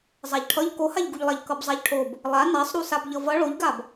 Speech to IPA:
zˤ a ʎ ʈʰ ʌ ʎ k o h a ʎ ɡ u ʎ lˠ a ʎ k ʌ b zˤ a ʎ ʈʰ o b | lˠ a n a sˤ ɾ u s a b ʎ ʌ v ʌ ɭ o ʎ ɡ a b

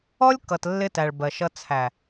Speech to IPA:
ɔ˦ lʲ k ʌ˨ t lː ɪ˦ t æ˨ ɭ b ɜ˨ ʃ ʌ˦ t͡sʰ æ˨

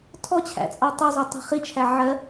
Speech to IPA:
tʰ ɔ t͡ɕʰ æ̰ t͡sʼ ɑ tˤ ɜ zˤ ɛ tˤ i̤ χ i t͡ʃʰ æ ʕ ɜ

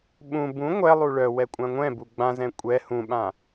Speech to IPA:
ɓ ũ b ũ ŋʷ ɛ lˠ u ɭ œ w ɛ kʷʼ ã ŋʷ ɛ̃ b u ɡ͡b ã z ɛ̃ kʷʼ ɛ h ũ ɓ ã

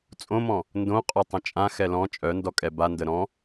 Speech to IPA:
t͡sʼ õ m ɔ̃ | n d õ qʼ ɔ tˤ ə̃ t͡ʃʼ ã x ɛ l ɔ̃ t͡ʃʼ œ n d ɔ kʼ ɛ b a n d ə ɾ ɔ̃

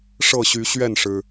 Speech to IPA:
ʂ ɤ˥˨ ɕ y˨˦ ɕ ɥ ɛ˥˨ n ʂ ɻ̩˩

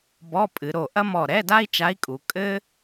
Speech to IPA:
b ɔ˧˥˧ pʼ ɨ˩˧ ɾ o˧˩ ʔ ɐ˥ m ɔ˧˩ ɾ ɛ˧˥˧ d a˥ i̯ t͡ʃ a˧˥ i̯ kʼ u˩˧ kʼ ɘ˥

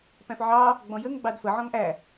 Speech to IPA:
p æ̃ f ʕ ɑ | ɡ͡b ɔ̃ j ə ŋ ɡ͡b ɑ d f ə ʕ ɔ̃ ŋ ʔ æ

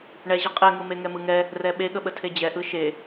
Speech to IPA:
ɳ ɛ ʑ ə qʼ ɛ ŋ ɯ m e ŋ ɛ m ɯ ŋ ɛ | r ɛ ɓ e ɠ ə ɓ ə tʰ e d͡ʑ ɛ ʔ ɯ ʃ e

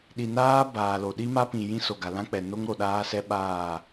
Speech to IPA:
ɗ i˨ n aː˦ b aː˨ l o˨ ɗ i˦ m a˦ p ĩ˨ j ĩ˦ s o˨ ɡ a˨ l ã˦ k͡p ɛ˨ n o˦ ŋ ɾ o˨ ɗ aː˦ s ɛ˦ ɓ aː˦˨

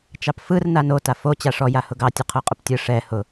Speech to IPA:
t͡ʃ ɑ p f ɯ r n a n o t a f o t͡ɕ a ʂ ɔ j a h ʊ ɡ ɑ tʲ ʊ qʰ o qʼ ʊ p tʲ ɯ ʂ ɛ h ʊ

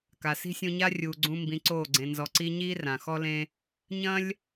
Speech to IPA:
k a˨ s i̤˦ sʲ ũ˧ ɲ a˦ rʲ uː˨ ɡ͡ǀ ũ˧ m b ĩ˨˦ ǀ oː˦˨ ɡ͡ǀ ẽ˧ n z ɔ˧ ǀ i˦ ɲ iː˦ r ã˨ x ɔ˦ l ẽ˦ | ɲ ɐ̃˦ lʲ

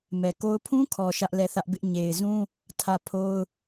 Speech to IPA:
m ɛ˨ k o˦ ʊ̯ pʰ ũ˦ kʰ ɔ˨ ʃ ä˦ ʔ l ɛ˦˨ θ ä˦ ʔ b ɪ˦ ʔ ɲ e˨ ɪ̯ z ũ˦ | tʰ ä˦˨ pʰ o˦ ʊ̯

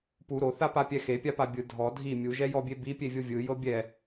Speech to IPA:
p u ɾ o θ a p a pʲ ɛ x e pʲ a p a bʲ ɯ dʱ ɔ dʱ i mʲ u ʒ ɛ j ɔ bʲ e b i pʲ e vʲ o vʲ ɯ j ɤ bʲ ɛ

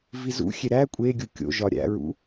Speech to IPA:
v i z ṵ xʲ e ɾ æ kʷʼ e ɡʲ u kʲ o̰ ʒ ɒ ɾʲ æ̰ ɹ ṵ

